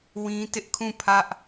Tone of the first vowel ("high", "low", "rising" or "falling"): high